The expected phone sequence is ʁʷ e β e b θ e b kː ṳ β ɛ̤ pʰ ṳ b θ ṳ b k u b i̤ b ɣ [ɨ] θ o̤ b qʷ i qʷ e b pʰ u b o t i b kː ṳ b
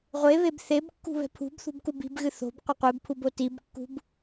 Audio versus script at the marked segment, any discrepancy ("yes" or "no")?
no